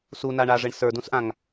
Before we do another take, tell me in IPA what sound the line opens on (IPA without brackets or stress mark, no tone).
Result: s